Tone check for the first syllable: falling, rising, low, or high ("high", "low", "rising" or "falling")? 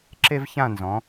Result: high